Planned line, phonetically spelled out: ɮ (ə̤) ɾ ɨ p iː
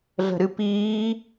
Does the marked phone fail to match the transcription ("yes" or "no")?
no